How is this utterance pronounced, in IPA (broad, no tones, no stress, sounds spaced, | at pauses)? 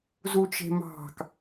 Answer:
z u t͡ʃ e̤ m ɑ̤ k